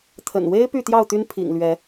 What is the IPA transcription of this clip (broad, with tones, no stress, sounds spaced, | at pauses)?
t̪ʰ ə̰˨˩ n w e˦ ɪ̯ p y˥˨ t̪ j ɑ˥˨ ʊ̯ t̪ y˦ n pʰ ḭ˨˩ ŋ l ɥ ɛ˨˦